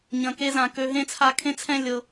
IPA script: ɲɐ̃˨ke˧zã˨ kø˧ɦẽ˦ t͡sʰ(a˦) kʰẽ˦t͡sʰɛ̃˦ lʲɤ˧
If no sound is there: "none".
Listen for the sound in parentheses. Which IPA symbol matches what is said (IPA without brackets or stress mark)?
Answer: a˧